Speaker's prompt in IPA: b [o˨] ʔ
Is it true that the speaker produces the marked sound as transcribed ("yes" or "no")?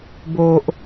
yes